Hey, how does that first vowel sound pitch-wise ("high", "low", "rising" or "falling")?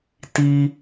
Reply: high